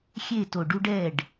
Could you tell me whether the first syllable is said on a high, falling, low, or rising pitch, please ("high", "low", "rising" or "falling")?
falling